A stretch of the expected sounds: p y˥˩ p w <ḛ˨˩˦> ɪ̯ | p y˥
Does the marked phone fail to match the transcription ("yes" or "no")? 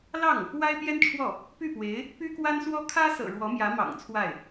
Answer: yes